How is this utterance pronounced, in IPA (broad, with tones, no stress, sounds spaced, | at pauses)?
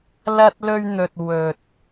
l ɐ˥ t̚ l ɵ˥ ɥ n̪ ɵ˧ t̚ w ɵ˨ t̚